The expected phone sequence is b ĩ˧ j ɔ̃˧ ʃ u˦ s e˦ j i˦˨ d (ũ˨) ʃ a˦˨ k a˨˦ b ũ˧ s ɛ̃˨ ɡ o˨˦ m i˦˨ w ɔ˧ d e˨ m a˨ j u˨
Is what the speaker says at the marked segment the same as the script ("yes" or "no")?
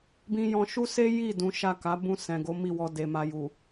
no